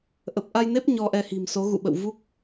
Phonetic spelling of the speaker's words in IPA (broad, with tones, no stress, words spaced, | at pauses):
ʔə˨˩p̚ʔa˧jne˦˥p̚ ɲɔ˧ʔɛ˧hi̤˨˩mso˨˦ ɣṵ˧˨ɓə̰˧˨w vu˦˥k̚